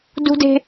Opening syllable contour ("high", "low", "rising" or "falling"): high